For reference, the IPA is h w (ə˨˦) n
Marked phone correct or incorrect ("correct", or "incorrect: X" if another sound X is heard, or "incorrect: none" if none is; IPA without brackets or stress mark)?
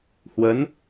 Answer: correct